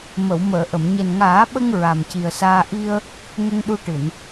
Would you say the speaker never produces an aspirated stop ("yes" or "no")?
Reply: yes